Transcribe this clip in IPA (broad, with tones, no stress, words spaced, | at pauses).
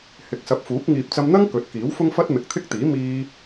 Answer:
hɪ˨˥k̚sɐ˨˥p̚fuː˨˥k̚ ŋiː˨p̚t͡sɐ˧mn̪ɐ˥ŋ kɵ˨˥t̚kiː˨˥wfʊ˥ŋfɐ˥t̚ mɪ˨k̚t̪ʰɪ˥k̚t̪iː˨˥ miː˧